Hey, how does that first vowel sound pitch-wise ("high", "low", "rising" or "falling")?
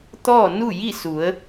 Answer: falling